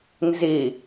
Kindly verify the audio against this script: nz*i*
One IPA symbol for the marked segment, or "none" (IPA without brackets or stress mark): i